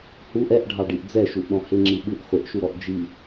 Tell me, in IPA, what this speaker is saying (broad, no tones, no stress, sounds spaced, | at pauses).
h u ʔ ɛ ʔ ɖʱ ɑ ɖ i ʔ d͡z ɛ ʃ u ʔ ɗ ɔ̃ h ɪ ŋ͡ǁ i ɓ ɯ ʔ χʷ ɪ ʔ ʃ u ɾ ɔ ʔ d͡ʒ i